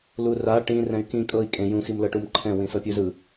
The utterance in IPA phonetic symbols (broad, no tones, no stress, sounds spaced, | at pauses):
l u r a ʈ ĩ r ɛ̃ y̯ k ĩ kʼ ɤ i̯ kʼ ẽ j ũ x i m l ɤ ʈ u m ǃʰ ɛ̃ w ĩ s ɤ pʲ u z ɯ